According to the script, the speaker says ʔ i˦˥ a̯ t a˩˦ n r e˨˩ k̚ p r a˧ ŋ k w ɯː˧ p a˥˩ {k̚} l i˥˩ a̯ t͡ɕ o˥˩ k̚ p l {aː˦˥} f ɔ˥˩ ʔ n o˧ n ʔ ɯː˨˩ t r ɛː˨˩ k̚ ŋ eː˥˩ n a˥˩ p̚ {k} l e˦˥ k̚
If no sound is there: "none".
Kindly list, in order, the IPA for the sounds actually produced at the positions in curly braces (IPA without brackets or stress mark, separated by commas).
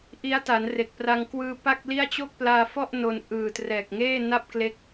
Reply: k̚, aː˧, k